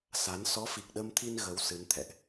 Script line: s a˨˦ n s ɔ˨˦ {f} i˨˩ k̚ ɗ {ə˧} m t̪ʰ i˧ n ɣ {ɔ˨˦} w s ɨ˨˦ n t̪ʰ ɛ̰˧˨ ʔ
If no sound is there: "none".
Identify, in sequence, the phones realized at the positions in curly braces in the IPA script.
f, ə˧, ə˨˦

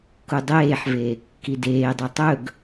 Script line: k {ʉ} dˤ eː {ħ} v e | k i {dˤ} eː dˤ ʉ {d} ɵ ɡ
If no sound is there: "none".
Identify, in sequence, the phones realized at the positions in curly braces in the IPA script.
u, ħ, d, tˤ

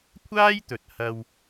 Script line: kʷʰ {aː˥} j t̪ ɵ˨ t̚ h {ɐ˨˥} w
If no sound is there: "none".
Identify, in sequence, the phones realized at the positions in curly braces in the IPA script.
aː˥, ɐ˧

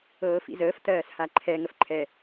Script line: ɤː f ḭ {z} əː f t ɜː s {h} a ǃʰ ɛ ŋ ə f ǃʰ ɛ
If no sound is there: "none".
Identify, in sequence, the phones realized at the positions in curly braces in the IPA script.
z, h

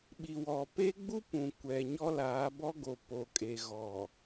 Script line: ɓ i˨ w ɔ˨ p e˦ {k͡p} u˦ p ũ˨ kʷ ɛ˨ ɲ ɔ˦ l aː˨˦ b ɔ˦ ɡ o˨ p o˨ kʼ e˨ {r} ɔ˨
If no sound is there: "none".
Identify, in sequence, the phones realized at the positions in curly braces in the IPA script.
ɡ͡b, ɣ

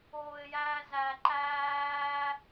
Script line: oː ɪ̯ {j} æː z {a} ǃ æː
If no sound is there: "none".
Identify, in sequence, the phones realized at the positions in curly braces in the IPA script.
j, æ

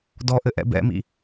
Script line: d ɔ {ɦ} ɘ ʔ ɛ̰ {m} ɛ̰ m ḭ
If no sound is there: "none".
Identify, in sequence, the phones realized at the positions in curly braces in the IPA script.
ʔ, b

